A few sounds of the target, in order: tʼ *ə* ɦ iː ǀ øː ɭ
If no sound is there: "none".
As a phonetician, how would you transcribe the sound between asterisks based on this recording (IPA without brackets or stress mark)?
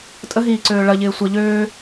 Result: ə